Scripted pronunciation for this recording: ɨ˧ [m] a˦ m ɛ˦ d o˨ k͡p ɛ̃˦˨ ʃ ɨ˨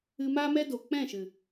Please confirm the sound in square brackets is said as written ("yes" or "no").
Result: yes